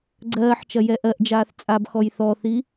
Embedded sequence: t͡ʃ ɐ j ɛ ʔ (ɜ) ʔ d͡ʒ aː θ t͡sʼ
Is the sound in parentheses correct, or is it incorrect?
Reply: correct